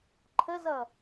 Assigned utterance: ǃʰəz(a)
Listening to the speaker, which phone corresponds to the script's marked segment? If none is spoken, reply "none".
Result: ʌ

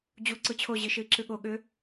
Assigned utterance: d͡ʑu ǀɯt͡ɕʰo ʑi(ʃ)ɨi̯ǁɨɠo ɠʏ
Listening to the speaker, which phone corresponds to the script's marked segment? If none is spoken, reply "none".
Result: ʃ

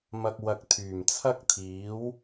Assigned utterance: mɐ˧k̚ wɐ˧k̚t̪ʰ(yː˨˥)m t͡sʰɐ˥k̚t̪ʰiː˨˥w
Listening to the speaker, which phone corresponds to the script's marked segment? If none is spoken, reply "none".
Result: yː˨˩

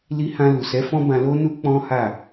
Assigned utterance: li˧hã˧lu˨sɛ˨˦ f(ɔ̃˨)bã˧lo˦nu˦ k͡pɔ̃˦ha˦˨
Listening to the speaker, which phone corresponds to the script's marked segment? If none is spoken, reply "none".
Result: ɔ̃˦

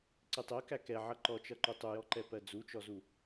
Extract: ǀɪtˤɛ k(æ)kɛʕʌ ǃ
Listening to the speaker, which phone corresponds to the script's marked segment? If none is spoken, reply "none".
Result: æ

